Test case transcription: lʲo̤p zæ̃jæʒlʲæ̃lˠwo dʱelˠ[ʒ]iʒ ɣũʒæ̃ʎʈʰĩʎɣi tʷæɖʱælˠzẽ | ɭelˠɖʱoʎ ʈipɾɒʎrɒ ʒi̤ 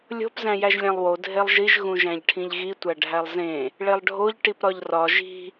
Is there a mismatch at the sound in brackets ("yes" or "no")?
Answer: no